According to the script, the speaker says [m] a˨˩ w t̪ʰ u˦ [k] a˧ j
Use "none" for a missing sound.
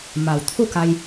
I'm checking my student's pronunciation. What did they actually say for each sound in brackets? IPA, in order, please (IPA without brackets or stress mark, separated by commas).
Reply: m, k